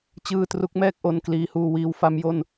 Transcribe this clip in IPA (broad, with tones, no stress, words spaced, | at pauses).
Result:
t͡ɕɯː˧ tru˦˥k̚mɛː˥˩k̚ ʔo˧nkliː˧huː˧wiː˦˥w fa˦˥mjo˥˩n